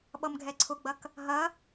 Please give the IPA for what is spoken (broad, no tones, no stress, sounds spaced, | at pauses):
ɓ ʌ m ɡʱ ɛ ǀʰ ʊ ɡ͡b ɐ k | ɦ ɐ